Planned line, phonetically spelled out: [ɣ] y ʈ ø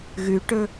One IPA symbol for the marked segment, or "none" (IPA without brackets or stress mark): ɣ